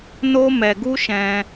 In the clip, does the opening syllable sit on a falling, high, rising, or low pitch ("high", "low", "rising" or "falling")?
high